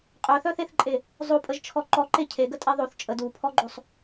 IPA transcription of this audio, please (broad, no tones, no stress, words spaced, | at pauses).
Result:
qʼœθœθeθǃʼe | zˤopʼəʒt͡ʃʰɔ ǃɔǃe cʰeɡətʼe ðˤoθ t͡ʃʼəd upʰɔɡ͡ǃosˤ